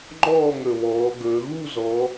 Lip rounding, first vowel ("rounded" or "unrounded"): rounded